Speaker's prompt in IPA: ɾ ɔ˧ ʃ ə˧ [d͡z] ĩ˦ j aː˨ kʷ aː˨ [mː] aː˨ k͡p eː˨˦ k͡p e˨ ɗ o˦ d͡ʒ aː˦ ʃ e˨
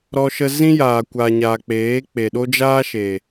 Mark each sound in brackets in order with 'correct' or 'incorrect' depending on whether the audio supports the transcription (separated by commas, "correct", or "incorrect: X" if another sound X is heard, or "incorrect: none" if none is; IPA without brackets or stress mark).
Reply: incorrect: z, incorrect: ɲ